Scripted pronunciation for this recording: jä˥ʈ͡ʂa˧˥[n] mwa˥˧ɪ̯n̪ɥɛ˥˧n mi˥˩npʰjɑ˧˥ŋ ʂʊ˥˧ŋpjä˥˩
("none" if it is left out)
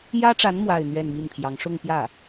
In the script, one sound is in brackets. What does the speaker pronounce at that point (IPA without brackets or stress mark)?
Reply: n